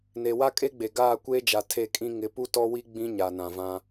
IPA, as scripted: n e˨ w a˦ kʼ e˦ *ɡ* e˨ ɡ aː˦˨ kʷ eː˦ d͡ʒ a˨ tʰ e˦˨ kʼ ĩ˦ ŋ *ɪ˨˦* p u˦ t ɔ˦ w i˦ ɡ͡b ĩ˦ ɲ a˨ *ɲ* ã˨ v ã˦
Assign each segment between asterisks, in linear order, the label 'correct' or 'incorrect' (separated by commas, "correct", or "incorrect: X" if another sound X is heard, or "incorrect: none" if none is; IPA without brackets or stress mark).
incorrect: ɡ͡b, correct, incorrect: n